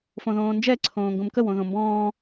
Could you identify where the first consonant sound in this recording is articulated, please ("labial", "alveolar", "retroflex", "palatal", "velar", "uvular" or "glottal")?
labial